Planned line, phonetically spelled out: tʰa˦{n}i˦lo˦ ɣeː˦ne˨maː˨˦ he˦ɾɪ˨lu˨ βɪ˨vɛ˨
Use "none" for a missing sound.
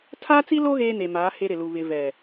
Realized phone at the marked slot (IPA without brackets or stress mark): t͡s